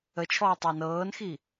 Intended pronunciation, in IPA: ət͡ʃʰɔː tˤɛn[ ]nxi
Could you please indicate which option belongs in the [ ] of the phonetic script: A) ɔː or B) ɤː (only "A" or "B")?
B